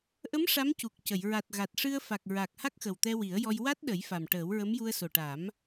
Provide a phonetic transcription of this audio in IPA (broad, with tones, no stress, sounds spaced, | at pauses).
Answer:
ʔ ə˧˥ m ʂ a˧˥ m c u˨˩ k̚ c ə˨˩˨ j ɹ a˨˩ t̚ ɣ a˨˩ t̚ ʂ ɨ˧ ə̯ f a˨˩ k̚ ɹ a˨˩ k̚ h a˦˥ k̚ x ə˨˩ w t̪ ɛ˧ w i˨˩˦ ə̯ j ɔ˧ j w a˦˥ t̚ ɗ ə˨˩˦ j f a˨˩ m ʈ əː˨˩˦ w ɹ ə˧˥ m j u˧ ə̯ s o˨˩ ʈ a˨˩˦ m